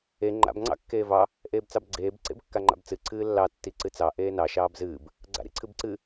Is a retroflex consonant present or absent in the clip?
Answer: absent